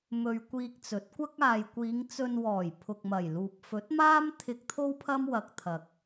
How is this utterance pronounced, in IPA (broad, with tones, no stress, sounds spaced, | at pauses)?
m ɵ˧ ɥ kʷ iː˧ k̚ t͡s ɵ˨˥ t̚ kʷ ɐ˥ k̚ aː˨ j kʷ iː˨˧ ŋ t͡s ɵ˧ n w ɔː˨˩ j pʰ ʊ˨ k̚ m ɐ˨˩ j l uː˨ p̚ f ɵ˨˥ t̚ m aː˥ m t̪ʰ ɪ˧ k̚ t̪ʰ o˥ w pʰ ɐ˥ m w ɐ˧ k̚ t̪ʰ ɐ˨ k̚